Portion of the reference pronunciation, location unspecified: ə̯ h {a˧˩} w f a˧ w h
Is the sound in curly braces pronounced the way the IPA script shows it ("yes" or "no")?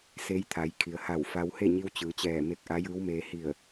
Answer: yes